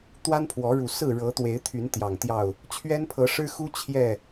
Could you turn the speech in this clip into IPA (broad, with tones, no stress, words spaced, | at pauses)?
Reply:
t̪wa˦npʰwɔ˨˦ɻu˨˩ sɹ̩˥˨ɻɤ˨˦t̪we˨˦ɪ̯t̪ʰy˨˦n t̪jɑ˨˩ŋt̪jɑ˥˨ʊ̯ | t͡ɕʰɥɛ˦npʰɤ˨˦ ʂɻ̩˦xu˦ t͡ɕʰjɛ˥˨